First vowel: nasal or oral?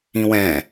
nasal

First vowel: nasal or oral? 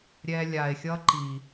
oral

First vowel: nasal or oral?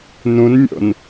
nasal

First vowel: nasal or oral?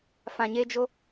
nasal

